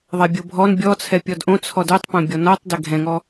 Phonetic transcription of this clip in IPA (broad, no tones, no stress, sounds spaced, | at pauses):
ðˤ ɛ bʲ o bʱ ɔ n bʲ ɔ t͡sʰ ɛ pʲ ɔ d ʔ õ t͡sʰ ɔ d o tˤ p õ bʲ ɔ n ɒ tˤ d ɛ ɡʱ ɛ̃ ŋ ɔ